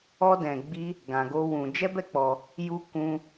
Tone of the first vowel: high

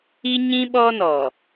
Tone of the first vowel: high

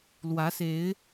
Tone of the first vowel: rising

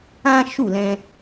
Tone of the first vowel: high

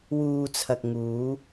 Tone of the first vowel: low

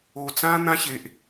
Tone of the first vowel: low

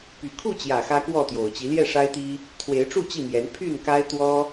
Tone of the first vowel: low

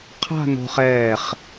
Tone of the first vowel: falling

